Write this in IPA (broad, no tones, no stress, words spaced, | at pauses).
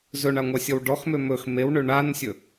zɵɳaŋʷasʲɔw ɖɔxmø mɵx mewɳø ɳansʲɵ